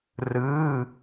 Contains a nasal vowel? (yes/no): no